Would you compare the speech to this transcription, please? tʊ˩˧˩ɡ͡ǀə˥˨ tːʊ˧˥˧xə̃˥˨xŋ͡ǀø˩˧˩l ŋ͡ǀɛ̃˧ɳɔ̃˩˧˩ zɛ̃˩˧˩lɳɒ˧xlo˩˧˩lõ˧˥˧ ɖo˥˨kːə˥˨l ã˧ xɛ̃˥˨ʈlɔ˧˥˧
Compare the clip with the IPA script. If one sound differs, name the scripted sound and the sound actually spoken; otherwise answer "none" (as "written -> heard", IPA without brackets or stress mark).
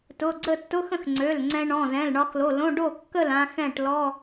none